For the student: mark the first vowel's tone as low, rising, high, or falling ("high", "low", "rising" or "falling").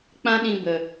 high